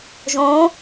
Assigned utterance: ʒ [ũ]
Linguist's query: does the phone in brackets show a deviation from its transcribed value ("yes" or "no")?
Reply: yes